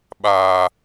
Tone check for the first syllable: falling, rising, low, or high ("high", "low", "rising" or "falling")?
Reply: low